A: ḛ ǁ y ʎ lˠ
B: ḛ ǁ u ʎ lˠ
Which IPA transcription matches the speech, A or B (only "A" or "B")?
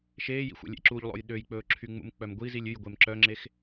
B